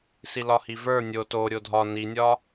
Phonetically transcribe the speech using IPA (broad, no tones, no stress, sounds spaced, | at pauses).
s i l ɒ h i v ə˞ nʲ o t o ɾʲ o dʱ ɒ n i nʲ ɒ